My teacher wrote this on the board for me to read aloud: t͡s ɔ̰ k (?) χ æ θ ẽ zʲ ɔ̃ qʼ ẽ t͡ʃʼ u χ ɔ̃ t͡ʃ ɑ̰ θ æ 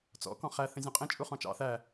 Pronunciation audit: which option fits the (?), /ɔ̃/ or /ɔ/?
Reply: ɔ̃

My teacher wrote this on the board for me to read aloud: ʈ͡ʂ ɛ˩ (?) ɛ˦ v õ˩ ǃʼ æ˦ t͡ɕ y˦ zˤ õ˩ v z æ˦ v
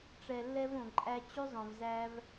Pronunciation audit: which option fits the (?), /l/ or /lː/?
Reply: lː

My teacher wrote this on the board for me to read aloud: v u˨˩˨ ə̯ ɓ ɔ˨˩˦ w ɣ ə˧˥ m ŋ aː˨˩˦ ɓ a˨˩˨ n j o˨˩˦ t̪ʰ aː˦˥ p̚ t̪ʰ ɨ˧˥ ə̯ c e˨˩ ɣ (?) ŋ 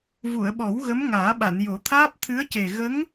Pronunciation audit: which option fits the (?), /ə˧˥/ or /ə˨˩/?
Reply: ə˧˥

